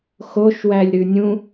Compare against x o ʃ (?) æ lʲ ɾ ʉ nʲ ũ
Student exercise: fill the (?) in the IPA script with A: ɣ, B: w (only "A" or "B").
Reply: B